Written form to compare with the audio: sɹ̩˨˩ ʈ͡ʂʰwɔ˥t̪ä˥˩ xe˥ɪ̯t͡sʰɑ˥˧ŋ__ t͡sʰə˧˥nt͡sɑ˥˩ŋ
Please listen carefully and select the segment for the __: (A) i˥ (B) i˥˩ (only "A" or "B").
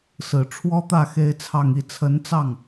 B